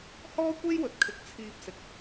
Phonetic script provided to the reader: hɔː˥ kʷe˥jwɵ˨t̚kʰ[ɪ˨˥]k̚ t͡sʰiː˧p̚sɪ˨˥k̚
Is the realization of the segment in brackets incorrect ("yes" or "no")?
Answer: no